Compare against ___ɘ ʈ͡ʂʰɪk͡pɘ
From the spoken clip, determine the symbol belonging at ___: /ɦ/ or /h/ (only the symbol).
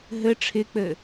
ɦ